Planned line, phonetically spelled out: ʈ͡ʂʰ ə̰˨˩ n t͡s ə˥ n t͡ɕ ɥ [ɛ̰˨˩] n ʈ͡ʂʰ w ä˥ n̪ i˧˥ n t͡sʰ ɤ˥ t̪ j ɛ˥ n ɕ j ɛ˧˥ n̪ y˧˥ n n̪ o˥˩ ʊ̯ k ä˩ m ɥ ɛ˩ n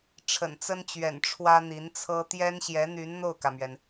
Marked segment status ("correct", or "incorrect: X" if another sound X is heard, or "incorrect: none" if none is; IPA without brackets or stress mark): correct